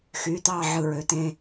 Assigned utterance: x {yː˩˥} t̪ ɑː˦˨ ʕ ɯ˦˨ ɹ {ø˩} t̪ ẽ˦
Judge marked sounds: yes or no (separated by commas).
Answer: yes, no